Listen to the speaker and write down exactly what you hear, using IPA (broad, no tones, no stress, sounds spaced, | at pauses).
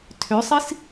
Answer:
tʰ ø sˤ i s